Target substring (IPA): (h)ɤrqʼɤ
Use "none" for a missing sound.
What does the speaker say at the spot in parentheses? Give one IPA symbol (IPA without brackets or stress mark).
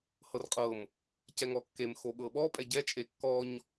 h